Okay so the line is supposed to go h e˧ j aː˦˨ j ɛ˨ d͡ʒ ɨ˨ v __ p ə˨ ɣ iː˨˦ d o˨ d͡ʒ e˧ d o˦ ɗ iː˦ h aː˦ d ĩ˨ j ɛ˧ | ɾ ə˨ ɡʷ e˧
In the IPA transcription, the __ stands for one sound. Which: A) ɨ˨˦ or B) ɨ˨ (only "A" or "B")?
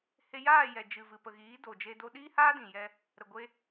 B